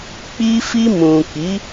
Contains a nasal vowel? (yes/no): yes